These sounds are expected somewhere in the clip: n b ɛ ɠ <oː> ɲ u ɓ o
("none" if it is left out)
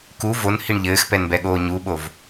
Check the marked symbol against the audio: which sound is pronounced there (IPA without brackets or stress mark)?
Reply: oː